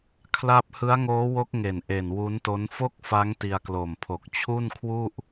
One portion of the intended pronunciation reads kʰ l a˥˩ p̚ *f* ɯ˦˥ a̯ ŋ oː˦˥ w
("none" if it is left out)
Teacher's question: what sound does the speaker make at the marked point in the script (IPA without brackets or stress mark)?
h